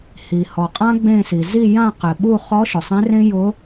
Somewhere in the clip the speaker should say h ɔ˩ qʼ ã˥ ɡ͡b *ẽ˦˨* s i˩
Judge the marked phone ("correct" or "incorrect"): correct